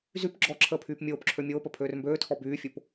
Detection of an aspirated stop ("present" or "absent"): present